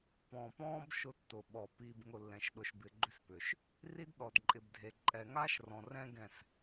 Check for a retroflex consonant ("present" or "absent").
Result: absent